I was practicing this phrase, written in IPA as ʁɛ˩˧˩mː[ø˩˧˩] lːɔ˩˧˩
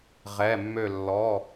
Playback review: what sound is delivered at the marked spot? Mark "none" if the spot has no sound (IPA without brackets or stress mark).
ø˧˩